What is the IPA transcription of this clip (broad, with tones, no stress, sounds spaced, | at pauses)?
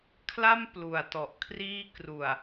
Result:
kʰ l a˥˩ m p l u˨˩ a̯ t ɔ˨˩ ʔ kʰ r iː˥˩ k r u˨˩ a̯